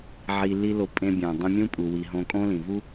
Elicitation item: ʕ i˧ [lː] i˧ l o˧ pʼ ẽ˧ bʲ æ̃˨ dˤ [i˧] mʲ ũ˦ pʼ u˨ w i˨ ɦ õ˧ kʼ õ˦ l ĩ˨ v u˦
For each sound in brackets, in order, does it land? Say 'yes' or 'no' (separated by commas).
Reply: no, no